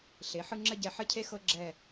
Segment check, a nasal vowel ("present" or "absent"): absent